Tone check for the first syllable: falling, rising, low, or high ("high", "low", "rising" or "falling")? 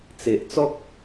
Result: low